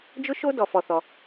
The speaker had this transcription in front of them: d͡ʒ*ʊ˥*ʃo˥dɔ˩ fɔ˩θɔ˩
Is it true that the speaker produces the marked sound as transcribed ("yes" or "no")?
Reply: yes